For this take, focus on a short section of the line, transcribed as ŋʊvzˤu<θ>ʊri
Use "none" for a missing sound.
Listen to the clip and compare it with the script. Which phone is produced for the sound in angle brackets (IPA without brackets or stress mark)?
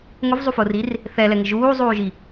f